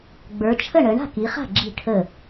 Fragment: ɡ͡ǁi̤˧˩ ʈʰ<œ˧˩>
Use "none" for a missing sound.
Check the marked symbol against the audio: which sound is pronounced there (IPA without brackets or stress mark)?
ə˧˩